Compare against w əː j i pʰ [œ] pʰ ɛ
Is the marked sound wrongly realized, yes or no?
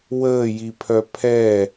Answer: no